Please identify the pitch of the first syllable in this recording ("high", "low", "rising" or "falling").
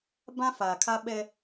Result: high